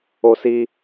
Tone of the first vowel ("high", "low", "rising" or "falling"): high